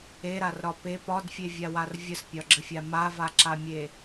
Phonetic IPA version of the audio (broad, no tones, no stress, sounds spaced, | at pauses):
e ɾ a r ɾ ɒ p e p ɒ d fʲ e vʲ a w a r vʲ ə s pʲ ɒ ɡ͡ǁ ə fʲ a m a v a ǁ a mʲ e